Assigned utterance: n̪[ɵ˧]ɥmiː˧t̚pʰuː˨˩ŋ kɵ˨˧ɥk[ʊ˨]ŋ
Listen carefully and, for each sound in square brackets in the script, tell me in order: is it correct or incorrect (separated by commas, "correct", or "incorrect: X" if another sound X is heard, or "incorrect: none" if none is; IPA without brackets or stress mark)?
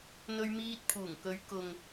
correct, correct